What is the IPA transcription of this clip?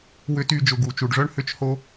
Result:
w ʏ˨ t y˨ d͡ʒ ʊ˩ ɡ u˩ t͡ʃ u˩ ɖ ʐ œ˥ ɳ h ʏ˦ t͡ʃ h o˥

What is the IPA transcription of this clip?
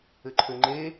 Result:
ɘ ǃʰ ø ŋ͡ǃ e

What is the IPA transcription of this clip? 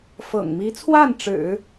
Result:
f ɤ̰˨˩ ŋ m i˧˥ t͡sʰ w a˥˩ n ʈ͡ʂ ɻ̩˨˩˦

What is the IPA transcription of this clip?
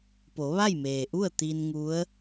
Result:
p o˩˧ ʋ a˥˨ j m eː˩ ʔ u˥˨ ə̯ t̪ i˧ n ŋ u˧˥ ə̯

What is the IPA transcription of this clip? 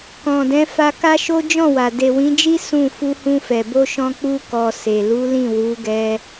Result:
k ɔ̃˨ d ɛ̃˨˦ f a˧ k a˦ ʃ o˦ d͡ʒ ɔ̃˦˨ w a˨ d e˨ w ĩ˨˦ d͡ʒ i˦ s ũ˦˨ f u˧ h ũ˧ f ɛ˨ b o˧ ʃ ɔ̃˧ k͡p u˧ k ɔ˨ s e˨ l u˨˦ l ĩ˦˨ w u˨˦ ɡ ɛ˧

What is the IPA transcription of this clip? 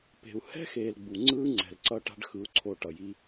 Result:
p e̤˨ u̯ h ɛ̤˦ x eː˨ l ɡ͡b u˨ ŋ͡ǀ ɯː˦ ŋ͡ǀ ɛ̤˨ l ǀ ʌ˦ ʈ a̤˦ ɖ x ɯ˨ u̯ ǀʰ o˨ ʈ ʌ˨ j i˦

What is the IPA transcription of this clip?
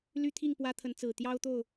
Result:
l y˦ t̪ʰ i˥˨ ŋ p w ä˦ t̪ʰ ə˨˦ n t͡s ɹ̩˨˩ t̪ j ɑ˦ ʊ̯ t̪ o˥˨ ʊ̯

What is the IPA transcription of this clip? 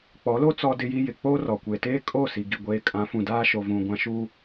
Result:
k͡p ɔ˨˦ l o˦ t͡s ɔ˦ d ɪ˦ j i˦ j ɪ˨ k͡p oː˦ r ɔ˨ kʷ e˨ t eː˦ kʼ o˦˨ s i˨ ɡ i˨ ɡʷ eː˨ kʼ ã˨˦ f ũ˨ d aː˦ ʃ o˨ v ũ˨ ɡʷ ã˨ ʃ u˨

